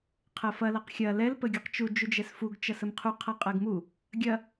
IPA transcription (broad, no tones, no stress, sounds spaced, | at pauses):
qʰ ɜ f ɐ l ɐ q xʲ ɐ l ɛ l p ə ɡʲ u q t͡ʃ u d͡ʒ u d͡ʒ ɛ s f u ɡ t͡ʃ ɐ s ə m qʰ u qʰ ɐ qʼ ɜ ɡ m u | ɡʲ ɐ